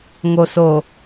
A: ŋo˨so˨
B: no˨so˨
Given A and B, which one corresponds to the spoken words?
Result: A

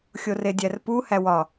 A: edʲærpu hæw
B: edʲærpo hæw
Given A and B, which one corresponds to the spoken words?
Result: A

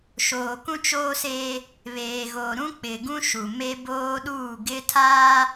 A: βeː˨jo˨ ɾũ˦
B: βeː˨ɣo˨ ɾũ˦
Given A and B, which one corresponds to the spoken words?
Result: B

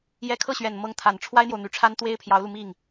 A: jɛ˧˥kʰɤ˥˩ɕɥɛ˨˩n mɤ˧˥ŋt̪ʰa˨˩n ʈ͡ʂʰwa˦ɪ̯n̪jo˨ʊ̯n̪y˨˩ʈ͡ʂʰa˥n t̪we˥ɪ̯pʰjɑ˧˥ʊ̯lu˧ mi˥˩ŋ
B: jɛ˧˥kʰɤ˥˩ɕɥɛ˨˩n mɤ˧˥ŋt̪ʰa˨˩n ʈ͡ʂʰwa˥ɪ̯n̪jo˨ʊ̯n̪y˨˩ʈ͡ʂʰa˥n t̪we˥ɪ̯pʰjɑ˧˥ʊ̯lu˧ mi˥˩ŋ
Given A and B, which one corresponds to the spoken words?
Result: B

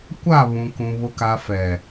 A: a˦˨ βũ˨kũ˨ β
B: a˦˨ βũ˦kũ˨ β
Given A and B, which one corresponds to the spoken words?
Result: A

